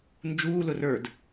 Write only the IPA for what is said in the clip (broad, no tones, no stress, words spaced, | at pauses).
nd͡ʒuːlʊ rə˞d